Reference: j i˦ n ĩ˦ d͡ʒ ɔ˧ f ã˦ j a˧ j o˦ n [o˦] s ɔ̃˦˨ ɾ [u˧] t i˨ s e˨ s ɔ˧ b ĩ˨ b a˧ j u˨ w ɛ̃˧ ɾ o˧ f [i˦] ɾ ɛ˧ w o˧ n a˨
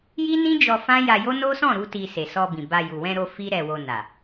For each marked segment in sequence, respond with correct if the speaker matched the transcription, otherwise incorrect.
correct, correct, correct

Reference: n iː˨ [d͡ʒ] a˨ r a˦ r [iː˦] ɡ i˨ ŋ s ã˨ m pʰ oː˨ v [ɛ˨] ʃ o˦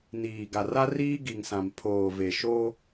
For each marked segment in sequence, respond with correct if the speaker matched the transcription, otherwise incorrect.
incorrect, correct, incorrect

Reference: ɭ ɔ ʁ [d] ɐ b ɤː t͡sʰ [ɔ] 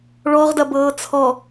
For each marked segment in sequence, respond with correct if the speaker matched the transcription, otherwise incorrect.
correct, correct

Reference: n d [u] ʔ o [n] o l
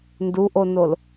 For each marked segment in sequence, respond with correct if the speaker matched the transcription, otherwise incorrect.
correct, correct

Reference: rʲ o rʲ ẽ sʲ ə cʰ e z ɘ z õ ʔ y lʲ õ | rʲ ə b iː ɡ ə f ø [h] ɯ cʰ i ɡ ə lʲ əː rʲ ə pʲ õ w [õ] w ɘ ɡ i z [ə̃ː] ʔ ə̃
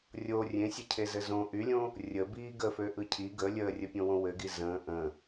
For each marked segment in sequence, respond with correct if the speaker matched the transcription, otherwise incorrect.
incorrect, correct, correct

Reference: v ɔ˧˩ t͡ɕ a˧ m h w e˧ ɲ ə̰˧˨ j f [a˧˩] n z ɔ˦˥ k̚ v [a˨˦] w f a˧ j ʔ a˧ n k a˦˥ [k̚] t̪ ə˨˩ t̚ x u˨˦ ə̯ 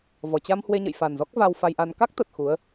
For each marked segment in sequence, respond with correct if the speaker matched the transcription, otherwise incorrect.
incorrect, incorrect, correct

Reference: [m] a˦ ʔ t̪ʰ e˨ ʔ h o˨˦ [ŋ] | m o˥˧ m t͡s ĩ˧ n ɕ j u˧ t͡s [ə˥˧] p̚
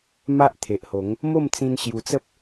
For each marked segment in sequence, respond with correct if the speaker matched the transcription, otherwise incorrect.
correct, correct, incorrect

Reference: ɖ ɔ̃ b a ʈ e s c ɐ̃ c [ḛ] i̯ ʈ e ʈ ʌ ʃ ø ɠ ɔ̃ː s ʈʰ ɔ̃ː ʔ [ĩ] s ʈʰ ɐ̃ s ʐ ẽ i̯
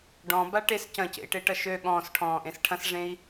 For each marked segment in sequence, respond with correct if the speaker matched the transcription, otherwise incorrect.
correct, incorrect

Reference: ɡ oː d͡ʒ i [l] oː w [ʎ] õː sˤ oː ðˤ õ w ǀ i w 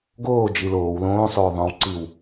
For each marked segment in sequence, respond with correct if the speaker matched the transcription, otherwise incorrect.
correct, incorrect

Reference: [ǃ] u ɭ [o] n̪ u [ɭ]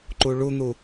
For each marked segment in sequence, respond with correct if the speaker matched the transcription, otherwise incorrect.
correct, incorrect, incorrect

